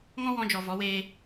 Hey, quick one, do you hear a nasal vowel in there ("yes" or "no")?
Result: yes